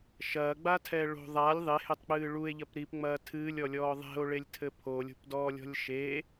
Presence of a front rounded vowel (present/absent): absent